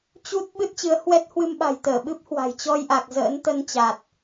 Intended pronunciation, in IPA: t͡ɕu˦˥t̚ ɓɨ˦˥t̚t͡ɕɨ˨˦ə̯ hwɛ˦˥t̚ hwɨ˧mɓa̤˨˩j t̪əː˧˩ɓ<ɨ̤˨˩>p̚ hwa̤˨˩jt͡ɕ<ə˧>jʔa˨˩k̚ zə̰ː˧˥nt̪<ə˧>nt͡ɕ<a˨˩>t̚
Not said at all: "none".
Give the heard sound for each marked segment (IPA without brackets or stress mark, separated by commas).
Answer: ɨ˦˥, ɔ˧, ə˧, a˨˩